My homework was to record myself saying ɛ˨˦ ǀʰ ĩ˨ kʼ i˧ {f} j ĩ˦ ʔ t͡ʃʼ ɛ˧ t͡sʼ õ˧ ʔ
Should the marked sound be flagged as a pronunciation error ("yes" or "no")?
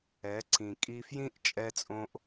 no